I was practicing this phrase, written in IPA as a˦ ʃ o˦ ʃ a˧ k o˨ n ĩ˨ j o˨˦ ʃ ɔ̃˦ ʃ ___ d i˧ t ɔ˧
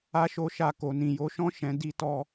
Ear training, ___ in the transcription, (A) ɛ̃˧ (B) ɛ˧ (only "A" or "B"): A